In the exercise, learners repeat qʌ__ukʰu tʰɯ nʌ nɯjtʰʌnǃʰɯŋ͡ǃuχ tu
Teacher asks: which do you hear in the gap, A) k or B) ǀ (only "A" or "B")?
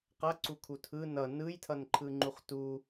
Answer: B